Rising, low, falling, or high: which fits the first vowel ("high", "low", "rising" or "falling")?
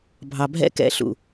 low